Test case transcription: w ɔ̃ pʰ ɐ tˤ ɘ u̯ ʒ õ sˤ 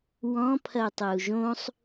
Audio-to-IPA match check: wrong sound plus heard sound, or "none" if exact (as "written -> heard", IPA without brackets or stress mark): none